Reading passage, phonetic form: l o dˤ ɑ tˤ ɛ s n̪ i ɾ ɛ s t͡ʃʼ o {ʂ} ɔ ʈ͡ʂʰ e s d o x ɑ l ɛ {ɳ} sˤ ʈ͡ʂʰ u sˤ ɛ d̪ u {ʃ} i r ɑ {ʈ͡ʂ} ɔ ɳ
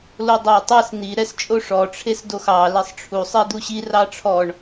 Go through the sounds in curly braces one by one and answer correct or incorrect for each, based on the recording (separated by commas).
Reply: correct, incorrect, incorrect, incorrect